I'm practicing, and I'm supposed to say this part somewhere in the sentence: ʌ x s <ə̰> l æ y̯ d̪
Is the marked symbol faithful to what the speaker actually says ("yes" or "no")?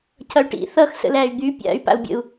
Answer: yes